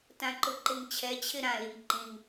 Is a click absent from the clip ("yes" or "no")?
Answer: no